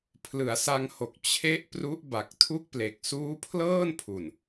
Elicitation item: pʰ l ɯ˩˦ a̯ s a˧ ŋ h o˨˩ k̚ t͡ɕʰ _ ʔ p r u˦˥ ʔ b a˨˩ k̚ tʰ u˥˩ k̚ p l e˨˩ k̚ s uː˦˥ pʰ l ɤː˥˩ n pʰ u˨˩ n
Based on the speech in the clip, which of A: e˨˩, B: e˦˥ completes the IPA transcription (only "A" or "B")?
B